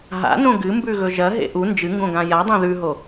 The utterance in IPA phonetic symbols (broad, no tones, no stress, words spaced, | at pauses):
ɦa̰nõ ɡɨmbʉɣɵ ʒɐɦḛ ʔu nd͡ʒɨŋɡõɡã jadˤẽ ðʉɦo